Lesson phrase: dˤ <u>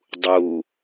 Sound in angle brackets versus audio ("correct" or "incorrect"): correct